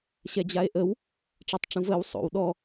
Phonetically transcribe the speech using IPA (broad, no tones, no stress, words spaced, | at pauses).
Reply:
ɕɛd͡ʑae̯ʔəw | ʈ͡ʂatˤʈ͡ʂũvəːw sˤo̰w ɗɔ